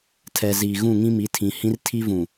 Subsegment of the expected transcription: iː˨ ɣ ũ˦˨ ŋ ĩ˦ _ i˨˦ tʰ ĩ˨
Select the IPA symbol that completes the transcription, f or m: m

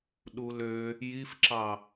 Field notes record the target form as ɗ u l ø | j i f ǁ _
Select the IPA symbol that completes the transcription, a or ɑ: ɑ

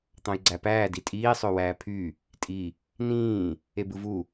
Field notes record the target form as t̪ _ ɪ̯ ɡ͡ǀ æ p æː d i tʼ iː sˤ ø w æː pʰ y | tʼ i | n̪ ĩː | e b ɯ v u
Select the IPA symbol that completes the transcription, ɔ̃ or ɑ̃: ɑ̃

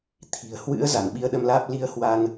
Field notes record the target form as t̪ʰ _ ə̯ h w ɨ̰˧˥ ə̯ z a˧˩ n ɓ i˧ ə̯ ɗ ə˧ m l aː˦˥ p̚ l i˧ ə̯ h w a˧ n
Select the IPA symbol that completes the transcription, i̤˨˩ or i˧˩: i̤˨˩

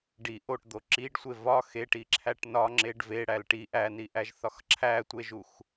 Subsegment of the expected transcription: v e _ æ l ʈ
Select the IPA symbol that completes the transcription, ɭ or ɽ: ɽ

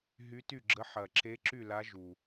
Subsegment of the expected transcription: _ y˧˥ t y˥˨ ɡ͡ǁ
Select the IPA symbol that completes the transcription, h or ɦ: ɦ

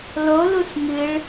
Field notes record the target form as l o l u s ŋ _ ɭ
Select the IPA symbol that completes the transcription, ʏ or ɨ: ɨ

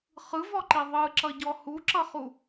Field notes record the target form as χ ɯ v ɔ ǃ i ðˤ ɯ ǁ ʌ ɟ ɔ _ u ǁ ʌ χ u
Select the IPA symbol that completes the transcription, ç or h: h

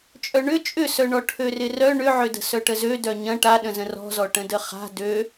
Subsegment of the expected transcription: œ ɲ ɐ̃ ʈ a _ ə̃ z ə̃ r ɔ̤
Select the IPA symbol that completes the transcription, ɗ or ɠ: ɗ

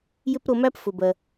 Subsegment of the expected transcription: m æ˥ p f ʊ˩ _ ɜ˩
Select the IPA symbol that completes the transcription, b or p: b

